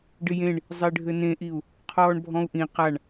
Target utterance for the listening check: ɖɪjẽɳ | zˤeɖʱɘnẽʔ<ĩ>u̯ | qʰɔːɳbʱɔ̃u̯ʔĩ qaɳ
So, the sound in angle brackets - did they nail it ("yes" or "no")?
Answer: no